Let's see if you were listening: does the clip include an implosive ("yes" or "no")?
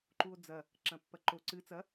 no